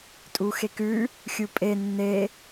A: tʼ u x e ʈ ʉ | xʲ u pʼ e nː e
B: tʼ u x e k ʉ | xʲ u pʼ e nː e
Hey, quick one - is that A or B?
B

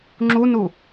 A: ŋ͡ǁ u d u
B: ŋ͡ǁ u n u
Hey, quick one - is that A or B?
B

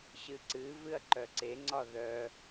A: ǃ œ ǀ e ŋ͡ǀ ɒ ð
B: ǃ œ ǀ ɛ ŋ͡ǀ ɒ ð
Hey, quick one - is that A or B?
A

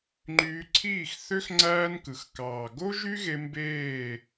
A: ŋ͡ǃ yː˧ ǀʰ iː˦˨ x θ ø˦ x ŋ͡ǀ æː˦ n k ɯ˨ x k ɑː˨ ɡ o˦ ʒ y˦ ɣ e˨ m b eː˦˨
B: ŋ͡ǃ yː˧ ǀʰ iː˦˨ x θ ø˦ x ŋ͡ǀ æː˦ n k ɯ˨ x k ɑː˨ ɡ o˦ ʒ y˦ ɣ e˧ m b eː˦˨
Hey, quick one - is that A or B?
B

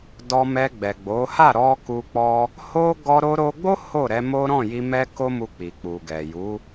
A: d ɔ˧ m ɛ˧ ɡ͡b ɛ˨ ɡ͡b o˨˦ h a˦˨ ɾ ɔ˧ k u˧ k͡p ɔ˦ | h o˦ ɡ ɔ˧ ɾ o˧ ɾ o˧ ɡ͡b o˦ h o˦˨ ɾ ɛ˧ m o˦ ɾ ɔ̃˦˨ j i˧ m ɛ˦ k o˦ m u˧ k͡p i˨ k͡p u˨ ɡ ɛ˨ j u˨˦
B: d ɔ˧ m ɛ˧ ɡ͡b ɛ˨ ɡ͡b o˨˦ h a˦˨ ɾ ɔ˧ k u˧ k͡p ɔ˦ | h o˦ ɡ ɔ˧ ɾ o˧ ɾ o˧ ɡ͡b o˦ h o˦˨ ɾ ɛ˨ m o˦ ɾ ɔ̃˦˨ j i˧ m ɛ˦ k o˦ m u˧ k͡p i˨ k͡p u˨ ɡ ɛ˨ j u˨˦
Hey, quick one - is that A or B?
A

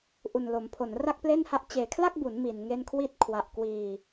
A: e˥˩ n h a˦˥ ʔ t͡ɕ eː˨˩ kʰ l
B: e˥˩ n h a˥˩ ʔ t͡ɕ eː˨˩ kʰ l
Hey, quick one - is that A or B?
B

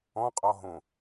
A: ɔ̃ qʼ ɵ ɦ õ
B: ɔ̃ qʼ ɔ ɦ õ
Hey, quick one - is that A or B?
B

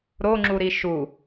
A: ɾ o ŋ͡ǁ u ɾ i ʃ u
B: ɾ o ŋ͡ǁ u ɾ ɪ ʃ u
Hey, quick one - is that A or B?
A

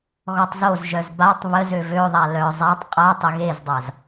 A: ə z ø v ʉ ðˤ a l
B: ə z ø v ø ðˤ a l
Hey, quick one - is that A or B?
B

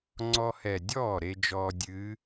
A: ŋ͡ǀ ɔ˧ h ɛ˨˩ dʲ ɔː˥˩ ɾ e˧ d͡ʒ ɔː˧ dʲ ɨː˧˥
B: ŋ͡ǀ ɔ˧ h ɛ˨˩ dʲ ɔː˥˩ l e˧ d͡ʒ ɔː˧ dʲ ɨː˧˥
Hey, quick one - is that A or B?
A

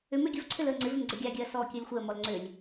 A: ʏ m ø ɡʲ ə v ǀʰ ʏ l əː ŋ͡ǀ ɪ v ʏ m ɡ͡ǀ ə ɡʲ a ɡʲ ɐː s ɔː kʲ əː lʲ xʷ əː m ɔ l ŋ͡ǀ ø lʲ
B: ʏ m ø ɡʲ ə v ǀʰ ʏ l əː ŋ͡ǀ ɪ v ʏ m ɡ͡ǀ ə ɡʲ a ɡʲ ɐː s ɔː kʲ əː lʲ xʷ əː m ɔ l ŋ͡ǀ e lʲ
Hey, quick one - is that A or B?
A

